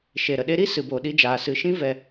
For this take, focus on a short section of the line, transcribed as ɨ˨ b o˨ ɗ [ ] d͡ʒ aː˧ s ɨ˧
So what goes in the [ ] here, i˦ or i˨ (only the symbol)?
i˦